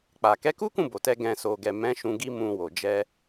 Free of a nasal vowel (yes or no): no